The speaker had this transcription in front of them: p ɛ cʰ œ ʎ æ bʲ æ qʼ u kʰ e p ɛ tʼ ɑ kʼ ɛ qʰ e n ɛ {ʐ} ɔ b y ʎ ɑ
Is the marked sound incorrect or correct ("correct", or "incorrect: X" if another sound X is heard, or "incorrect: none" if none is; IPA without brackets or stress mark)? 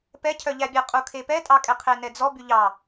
incorrect: d͡z